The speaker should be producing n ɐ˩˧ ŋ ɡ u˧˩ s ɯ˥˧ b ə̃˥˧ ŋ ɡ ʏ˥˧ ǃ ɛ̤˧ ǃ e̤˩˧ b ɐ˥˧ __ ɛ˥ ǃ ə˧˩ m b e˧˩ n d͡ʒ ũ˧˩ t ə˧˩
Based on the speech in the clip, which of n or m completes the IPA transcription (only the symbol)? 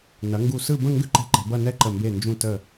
n